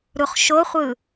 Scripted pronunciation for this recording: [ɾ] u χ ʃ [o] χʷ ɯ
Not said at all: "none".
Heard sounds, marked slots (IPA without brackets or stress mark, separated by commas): ɾ, o